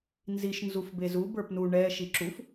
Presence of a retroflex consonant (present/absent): present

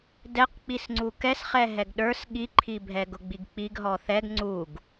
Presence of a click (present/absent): present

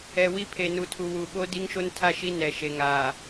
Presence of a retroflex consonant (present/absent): absent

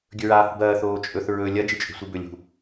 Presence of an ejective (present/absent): present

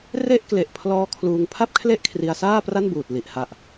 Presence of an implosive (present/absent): absent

